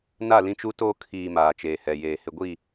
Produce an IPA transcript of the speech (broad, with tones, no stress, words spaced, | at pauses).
na˦˨lĩ˦t͡ʃu˦toː˦ kʰiː˨ maː˨t͡ʃeː˨hɛ˨jeː˨ hɪ˨ɡʷi˦˨